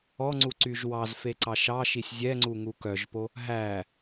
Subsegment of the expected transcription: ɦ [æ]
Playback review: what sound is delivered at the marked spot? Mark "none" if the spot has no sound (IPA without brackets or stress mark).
æ